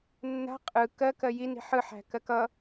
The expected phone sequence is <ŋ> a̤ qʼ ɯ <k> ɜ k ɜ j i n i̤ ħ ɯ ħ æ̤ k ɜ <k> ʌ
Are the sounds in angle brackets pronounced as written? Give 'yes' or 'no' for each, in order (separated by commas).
no, yes, yes